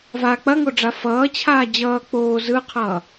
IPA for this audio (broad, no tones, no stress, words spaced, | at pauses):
va k͡pɐŋoɖ͡ʐa fʌːt͡ɕʰaː d͡ʑʌː k͡poː zɯqʰʌː